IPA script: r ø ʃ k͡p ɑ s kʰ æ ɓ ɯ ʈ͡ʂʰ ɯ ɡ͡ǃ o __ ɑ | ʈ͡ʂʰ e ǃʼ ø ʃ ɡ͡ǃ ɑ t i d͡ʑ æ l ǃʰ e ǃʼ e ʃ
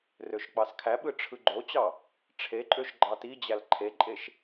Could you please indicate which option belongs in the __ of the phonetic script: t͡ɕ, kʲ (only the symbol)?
t͡ɕ